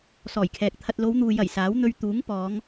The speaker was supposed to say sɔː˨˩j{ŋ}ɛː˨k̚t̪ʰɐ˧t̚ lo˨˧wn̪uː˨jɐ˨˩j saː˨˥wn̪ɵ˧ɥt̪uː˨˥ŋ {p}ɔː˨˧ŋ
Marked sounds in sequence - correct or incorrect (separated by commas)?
incorrect, correct